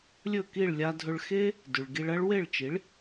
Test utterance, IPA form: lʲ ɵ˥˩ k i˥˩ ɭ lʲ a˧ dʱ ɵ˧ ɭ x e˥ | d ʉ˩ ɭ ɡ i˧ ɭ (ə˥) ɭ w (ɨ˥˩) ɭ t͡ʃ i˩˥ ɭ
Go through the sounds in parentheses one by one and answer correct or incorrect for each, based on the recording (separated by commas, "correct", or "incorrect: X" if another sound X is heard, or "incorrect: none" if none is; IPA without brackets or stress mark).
incorrect: ɐ˥, incorrect: e˥˩